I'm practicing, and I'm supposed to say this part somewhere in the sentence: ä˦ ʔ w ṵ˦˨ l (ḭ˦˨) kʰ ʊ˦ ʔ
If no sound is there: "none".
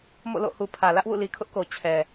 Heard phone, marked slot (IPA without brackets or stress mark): i˨